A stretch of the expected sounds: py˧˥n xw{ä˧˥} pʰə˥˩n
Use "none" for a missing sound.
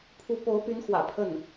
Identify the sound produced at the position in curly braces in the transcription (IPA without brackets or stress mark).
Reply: ä̰˨˩